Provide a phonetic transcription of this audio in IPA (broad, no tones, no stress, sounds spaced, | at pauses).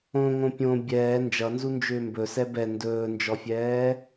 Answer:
õ ŋ õ pʲ õ bʲ ɛː n d͡ʒ ʌ n z u n d͡ʒ ʏː m b ɵ s ɛ b ɛ n d ɵː n d͡ʒ ɔ fʲ ɛː